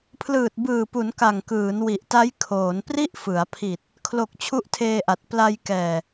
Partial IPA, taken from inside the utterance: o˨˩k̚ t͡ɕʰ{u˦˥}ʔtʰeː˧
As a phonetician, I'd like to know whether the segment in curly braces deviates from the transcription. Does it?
no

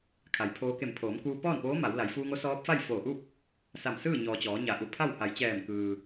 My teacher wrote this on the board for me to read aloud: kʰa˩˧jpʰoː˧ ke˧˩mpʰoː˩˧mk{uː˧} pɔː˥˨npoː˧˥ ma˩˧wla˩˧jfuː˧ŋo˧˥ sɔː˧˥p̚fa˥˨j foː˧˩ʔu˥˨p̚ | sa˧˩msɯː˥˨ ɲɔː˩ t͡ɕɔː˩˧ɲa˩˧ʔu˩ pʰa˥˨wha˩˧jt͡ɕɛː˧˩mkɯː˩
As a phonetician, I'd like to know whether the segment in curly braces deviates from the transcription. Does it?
no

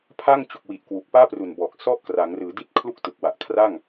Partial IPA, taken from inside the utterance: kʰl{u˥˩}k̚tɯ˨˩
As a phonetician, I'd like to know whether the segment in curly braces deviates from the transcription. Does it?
no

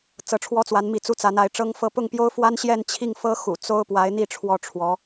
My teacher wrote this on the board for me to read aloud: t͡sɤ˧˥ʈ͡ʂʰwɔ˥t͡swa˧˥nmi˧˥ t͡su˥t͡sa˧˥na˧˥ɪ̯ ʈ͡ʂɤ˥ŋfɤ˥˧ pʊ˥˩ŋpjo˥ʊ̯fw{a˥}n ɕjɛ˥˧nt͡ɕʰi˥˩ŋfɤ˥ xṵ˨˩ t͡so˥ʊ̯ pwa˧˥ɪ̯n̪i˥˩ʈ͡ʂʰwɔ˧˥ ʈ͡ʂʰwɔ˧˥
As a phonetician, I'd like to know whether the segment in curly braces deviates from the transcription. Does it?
no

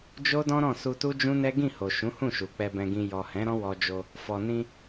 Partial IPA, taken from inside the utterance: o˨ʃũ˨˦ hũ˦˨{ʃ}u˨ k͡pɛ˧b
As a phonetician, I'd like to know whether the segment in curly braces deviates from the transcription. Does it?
no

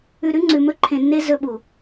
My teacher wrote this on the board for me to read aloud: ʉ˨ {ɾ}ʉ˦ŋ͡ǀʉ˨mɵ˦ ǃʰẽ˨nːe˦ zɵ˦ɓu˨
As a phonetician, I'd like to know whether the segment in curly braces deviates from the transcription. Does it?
no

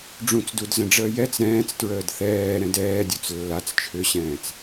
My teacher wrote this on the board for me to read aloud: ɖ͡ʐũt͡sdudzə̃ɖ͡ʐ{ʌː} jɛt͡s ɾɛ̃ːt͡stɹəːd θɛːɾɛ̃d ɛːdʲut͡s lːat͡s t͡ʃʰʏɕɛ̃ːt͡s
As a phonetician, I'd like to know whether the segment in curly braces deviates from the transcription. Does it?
yes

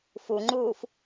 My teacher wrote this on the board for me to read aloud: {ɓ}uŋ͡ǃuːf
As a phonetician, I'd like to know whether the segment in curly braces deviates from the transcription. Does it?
yes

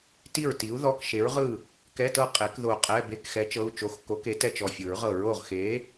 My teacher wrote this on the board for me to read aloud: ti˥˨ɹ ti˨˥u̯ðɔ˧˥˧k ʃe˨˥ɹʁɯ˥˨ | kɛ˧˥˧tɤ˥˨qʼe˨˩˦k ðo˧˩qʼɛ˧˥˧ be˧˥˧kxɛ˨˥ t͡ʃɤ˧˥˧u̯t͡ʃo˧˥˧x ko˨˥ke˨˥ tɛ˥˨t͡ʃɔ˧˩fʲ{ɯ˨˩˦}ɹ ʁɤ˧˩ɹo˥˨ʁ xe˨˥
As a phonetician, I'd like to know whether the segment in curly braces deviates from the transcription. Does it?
no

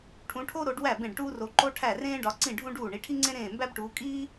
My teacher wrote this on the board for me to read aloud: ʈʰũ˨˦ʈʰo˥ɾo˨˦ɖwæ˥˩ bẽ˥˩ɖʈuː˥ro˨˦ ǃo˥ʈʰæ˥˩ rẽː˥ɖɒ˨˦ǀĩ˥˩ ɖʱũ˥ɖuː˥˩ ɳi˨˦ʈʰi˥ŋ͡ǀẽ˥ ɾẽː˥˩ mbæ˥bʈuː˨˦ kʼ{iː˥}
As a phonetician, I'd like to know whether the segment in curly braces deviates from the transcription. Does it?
no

